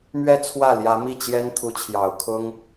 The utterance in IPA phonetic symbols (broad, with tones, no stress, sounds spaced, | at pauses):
m ɥ ɛ˥˧ t͡sʰ w ä˥˩ l j ä˧˥ m i˥˩ t͡ɕ j ɛ˥ n t̪ʰ u˧˥ t͡ɕʰ j ɑ˨˩ ʊ̯ kʰ ʊ˥ ŋ